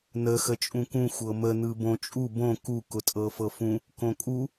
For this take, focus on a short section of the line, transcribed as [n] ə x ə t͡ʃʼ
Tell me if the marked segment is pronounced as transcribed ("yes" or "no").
yes